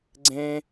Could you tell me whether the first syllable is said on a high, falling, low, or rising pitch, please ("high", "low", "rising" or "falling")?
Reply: high